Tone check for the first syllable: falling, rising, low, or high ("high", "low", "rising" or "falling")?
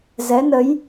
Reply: rising